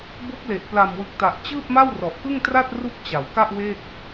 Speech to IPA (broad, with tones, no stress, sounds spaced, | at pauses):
b o˦˥ k̚ l e˨˩ ʔ p l a˨˩ m w ɯ˨˩ k̚ t a˨˩ ʔ t͡ɕ ɯː˥˩ p̚ m a˥˩ w r ɔ˨˩ ʔ k ɯ˥˩ ŋ t r a˥˩ t̚ r u˥˩ k̚ t͡ɕ a˩˦ w k a˥˩ ʔ w e˥˩ k̚